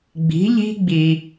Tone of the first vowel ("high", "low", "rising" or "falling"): rising